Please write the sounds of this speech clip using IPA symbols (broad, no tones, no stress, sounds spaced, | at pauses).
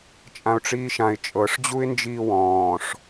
t͡ʃʼ ã ʊ̯ ʈ͡ʂ iː ʃ ã ɪ̯ t͡ʃʼ ɤ ʂ d͡ʑ u ɪ̯ n d͡ʒ iː w ɔ̃ː ʂ